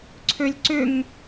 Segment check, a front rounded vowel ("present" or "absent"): present